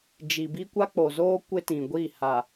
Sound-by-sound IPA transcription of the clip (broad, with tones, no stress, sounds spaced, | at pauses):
d͡ʒ i˨ b i˦ kʷ a˦ k͡p o˨ z oː˦ kʷ ɪ˦ t ĩ˨ ɡʷ i˦˨ h a˨